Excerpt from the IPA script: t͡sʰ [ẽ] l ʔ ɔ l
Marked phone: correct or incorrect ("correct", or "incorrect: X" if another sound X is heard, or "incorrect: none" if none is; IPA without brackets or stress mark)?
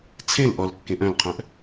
correct